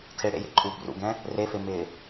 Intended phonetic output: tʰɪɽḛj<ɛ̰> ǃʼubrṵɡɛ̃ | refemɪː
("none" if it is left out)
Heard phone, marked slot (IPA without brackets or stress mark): ḛ